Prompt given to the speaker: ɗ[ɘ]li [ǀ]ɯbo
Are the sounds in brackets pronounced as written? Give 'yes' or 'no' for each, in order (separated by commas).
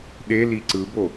no, yes